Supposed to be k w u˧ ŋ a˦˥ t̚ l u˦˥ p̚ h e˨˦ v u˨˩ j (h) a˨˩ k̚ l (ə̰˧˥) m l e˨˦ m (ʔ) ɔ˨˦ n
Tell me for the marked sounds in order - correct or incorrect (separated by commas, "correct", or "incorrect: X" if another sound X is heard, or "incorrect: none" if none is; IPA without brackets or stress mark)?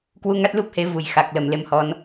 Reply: incorrect: x, incorrect: ə˨˩, incorrect: h